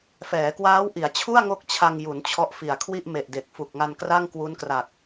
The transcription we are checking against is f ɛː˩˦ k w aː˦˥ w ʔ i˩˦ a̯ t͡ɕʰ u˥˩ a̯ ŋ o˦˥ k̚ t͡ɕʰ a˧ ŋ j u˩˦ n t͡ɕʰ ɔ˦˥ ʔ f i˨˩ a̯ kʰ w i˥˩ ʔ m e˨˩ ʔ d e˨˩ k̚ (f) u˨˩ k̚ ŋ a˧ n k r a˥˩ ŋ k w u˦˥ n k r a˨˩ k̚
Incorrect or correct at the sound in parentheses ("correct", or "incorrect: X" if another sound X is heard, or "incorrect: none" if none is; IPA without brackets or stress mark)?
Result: correct